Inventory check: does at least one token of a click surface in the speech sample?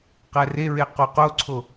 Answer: yes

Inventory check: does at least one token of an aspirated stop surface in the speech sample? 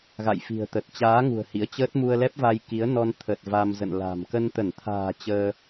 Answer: yes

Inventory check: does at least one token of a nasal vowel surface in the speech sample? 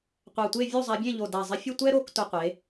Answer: yes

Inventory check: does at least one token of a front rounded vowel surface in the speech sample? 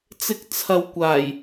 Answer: no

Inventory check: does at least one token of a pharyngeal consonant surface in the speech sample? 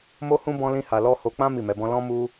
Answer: no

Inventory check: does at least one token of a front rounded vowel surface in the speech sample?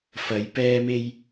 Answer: no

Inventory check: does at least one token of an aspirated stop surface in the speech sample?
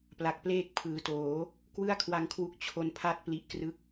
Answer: yes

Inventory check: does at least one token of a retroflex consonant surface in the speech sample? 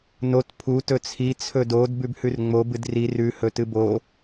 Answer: no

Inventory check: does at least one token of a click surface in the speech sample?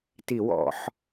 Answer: no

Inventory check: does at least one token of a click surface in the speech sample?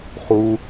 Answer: no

